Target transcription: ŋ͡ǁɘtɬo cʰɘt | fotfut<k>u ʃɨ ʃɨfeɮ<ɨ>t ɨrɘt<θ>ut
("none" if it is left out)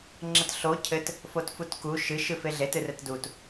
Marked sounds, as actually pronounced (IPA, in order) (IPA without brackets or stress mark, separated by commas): k, e, d